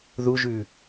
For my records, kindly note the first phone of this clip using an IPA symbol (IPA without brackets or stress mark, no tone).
ð